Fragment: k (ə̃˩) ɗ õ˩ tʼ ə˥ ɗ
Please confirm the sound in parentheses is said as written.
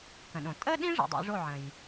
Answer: yes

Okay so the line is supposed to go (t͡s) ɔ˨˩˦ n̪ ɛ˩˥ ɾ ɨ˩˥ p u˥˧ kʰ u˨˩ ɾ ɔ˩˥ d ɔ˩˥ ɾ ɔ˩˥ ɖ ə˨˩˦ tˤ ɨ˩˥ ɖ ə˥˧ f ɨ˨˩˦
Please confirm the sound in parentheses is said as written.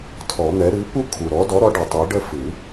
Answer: no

